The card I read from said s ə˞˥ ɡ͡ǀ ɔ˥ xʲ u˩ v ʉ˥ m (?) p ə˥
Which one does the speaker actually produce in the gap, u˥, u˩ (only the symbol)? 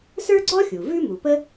u˩